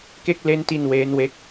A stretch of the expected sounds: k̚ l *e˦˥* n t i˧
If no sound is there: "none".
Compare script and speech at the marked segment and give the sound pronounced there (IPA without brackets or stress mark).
e˦˥